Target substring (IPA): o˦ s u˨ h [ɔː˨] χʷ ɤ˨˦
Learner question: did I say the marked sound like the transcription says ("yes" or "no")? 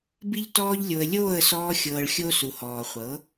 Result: yes